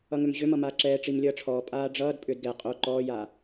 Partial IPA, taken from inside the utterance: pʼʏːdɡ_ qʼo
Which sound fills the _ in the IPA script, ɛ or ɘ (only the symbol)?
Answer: ɛ